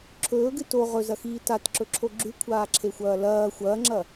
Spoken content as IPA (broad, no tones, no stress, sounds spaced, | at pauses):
ǁʰ ɵː ɡ ɨ t o ʁ ɵ z ɐ x iː t a t ǁ ɵ ǁʰ o ɡ͡ǁ ʉ kʷʰ aː ǁʰ e xʷ ɐː l ɐː xʷ ɐː ŋ͡ǁ ɐ